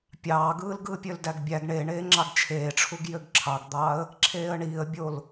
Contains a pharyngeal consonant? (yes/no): no